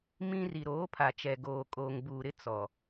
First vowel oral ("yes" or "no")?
no